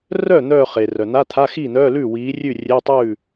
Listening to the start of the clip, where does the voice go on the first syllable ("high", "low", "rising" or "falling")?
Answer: falling